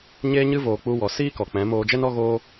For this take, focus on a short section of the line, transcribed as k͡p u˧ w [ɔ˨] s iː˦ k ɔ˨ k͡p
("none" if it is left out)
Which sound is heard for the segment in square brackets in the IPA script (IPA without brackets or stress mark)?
ɔ˨